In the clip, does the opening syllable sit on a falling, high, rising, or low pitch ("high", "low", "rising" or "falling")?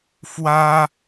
high